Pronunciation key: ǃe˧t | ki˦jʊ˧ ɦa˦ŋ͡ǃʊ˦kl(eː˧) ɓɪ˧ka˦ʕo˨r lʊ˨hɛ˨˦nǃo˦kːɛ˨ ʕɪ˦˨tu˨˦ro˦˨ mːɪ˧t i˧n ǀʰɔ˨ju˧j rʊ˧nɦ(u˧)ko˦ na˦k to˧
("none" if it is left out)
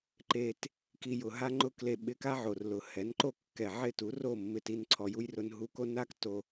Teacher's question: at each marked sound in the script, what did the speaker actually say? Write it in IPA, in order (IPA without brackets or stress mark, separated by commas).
e˧, u˧